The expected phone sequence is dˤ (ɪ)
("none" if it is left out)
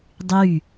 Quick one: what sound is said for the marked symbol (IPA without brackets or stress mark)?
y